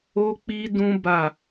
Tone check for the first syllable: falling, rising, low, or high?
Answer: high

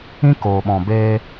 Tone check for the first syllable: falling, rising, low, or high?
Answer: high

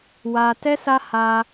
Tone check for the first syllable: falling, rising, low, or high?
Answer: high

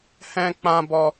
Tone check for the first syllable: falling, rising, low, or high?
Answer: high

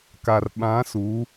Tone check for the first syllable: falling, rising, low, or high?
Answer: low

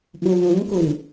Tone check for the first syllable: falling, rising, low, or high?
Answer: low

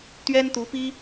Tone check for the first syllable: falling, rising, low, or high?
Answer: high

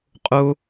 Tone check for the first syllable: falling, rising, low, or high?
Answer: high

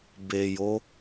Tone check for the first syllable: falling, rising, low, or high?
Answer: low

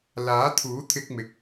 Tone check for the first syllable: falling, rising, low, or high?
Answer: rising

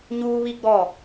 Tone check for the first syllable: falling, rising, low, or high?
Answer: high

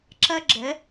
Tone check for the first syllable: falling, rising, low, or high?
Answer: high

